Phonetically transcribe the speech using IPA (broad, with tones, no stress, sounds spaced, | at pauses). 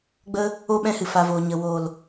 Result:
ɡ͡b ə˧ | o˦ ɓ ɛ̃˧ h ɨ˨ f a˨ v oː˨ ɲ ə˨ w oː˨ l